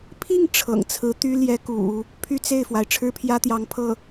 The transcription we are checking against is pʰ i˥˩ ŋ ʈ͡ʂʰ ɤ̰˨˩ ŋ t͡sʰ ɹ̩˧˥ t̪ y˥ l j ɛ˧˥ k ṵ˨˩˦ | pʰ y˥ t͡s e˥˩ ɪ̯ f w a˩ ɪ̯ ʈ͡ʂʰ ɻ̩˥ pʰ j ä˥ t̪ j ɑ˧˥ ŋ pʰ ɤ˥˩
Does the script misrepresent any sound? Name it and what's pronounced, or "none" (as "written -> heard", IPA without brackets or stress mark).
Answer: none